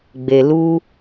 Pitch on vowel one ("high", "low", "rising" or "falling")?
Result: low